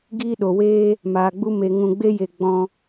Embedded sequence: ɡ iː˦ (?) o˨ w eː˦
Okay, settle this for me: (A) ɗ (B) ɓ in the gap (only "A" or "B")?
A